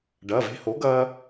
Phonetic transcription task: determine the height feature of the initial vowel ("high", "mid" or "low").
low